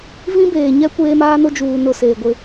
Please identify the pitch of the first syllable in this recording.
high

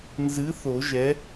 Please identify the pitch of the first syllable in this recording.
rising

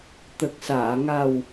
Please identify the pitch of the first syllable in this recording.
low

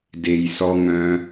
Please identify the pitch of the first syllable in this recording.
low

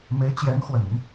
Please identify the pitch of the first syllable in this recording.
rising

